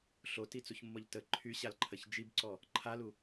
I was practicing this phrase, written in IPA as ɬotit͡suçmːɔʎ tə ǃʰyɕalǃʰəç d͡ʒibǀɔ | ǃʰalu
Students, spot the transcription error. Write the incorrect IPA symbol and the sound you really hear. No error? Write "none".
none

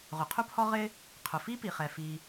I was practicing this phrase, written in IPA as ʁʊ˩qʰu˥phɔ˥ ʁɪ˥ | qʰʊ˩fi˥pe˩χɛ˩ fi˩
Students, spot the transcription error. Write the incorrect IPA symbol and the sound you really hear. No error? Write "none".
e˩ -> i˩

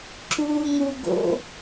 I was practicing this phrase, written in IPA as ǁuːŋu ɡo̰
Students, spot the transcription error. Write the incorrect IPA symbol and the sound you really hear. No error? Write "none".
none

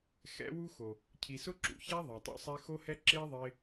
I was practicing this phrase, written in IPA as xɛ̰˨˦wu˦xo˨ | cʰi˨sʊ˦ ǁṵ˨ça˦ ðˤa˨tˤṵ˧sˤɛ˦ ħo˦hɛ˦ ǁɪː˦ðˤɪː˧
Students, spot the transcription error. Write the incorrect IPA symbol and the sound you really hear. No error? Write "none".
ħ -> x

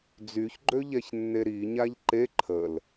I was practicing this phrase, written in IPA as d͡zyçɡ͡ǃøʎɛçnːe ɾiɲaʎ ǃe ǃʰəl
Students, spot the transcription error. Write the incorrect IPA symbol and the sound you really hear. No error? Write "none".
none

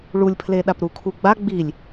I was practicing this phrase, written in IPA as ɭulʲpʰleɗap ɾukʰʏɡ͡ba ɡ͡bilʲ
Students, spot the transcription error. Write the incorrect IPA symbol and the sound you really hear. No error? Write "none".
ʏ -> u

